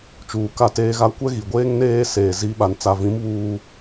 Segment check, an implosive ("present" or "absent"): present